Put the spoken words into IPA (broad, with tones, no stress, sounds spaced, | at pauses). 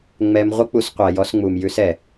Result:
ŋ͡m ɛ˧ m ʁʷ ə˦ k͡p u˧ s qʷ æ˨ j ɔ˧ s ŋ͡m u˨ m j ʉ˦ s ɛ˨